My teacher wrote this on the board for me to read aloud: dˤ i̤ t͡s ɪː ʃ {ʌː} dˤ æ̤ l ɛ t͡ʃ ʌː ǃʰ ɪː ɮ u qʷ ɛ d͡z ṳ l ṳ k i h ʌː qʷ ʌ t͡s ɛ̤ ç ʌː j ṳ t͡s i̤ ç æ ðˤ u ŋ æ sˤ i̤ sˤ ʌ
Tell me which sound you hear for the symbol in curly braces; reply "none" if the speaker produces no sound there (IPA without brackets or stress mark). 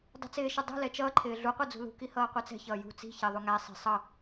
ʌ